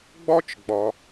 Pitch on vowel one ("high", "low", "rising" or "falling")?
high